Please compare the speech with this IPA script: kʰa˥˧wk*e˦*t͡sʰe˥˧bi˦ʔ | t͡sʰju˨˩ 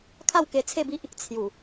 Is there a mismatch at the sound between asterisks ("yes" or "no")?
yes